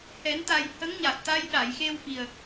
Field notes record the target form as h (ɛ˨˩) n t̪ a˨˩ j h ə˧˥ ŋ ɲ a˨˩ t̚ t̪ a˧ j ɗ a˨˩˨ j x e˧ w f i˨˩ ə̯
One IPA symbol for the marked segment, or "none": ɛ˨˩˦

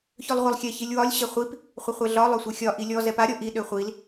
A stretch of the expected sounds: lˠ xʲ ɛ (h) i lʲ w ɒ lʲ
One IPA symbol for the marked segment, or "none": ç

